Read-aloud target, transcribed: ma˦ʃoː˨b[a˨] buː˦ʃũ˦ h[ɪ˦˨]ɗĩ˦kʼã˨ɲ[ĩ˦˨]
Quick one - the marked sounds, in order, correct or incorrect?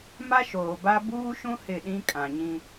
incorrect, correct, incorrect

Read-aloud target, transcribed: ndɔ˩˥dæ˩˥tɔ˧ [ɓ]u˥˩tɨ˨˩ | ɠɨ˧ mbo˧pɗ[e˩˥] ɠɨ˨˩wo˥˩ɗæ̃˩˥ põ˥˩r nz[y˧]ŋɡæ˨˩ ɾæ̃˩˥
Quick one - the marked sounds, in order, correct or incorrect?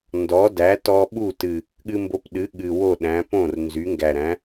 correct, incorrect, incorrect

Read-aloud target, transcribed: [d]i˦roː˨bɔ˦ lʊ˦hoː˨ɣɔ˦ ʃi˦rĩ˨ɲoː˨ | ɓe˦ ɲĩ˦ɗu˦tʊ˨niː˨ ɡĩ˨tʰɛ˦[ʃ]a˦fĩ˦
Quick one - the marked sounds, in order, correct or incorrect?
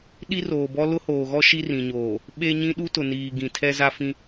incorrect, incorrect

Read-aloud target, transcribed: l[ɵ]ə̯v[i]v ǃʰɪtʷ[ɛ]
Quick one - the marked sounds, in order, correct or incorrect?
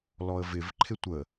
incorrect, incorrect, incorrect

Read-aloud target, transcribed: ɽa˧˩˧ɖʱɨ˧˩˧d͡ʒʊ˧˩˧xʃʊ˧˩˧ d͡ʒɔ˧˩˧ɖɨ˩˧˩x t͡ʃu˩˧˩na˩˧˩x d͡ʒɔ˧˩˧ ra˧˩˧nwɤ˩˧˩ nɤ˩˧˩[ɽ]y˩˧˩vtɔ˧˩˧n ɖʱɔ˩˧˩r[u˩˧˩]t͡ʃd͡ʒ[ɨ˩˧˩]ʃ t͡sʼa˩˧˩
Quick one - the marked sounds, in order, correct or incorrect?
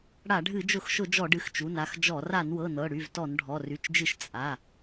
correct, incorrect, incorrect

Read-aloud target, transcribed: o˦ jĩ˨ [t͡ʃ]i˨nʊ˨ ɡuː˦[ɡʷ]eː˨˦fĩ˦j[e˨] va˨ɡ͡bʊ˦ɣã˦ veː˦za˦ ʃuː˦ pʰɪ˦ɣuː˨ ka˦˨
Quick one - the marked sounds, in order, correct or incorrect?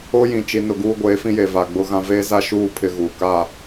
correct, correct, correct

